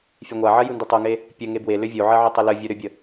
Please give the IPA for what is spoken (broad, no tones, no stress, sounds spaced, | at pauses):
fʲ e ŋʷ a ʕ ɜ j u n d ʏ tˤ o ŋ e | pʲ ə ŋ e b w e l ʏ vʲ o ʕ ɜ ʕ ʏ tˤ ə l ə vʲ o ɾ ʏ bʲ ə